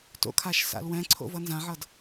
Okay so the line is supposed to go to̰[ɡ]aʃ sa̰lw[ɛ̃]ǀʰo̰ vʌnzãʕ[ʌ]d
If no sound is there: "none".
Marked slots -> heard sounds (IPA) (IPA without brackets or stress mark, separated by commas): kʰ, ɛ̃, ʌ